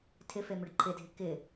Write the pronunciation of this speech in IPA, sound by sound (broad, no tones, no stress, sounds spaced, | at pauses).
tʰ ɪ f e m ʏ ɖ ǃʰ ɪ dʱ ɪ k ɪ